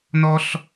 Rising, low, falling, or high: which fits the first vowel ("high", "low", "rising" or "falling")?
high